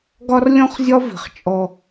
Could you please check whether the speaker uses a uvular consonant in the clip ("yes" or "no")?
yes